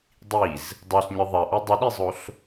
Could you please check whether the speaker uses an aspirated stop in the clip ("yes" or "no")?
no